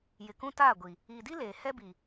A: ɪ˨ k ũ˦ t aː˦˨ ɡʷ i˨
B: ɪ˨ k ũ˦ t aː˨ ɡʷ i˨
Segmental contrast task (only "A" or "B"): A